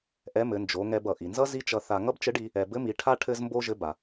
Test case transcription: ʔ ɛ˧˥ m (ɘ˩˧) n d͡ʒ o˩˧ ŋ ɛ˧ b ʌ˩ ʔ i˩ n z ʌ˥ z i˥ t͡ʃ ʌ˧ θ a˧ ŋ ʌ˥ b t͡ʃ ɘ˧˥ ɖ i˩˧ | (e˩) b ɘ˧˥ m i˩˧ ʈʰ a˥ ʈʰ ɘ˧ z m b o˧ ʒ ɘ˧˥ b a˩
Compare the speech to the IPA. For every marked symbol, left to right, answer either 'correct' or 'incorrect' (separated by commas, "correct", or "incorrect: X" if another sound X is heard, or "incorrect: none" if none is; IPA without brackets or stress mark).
correct, incorrect: ɛ˩